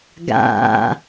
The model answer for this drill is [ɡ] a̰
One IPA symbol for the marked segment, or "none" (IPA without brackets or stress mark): ɡ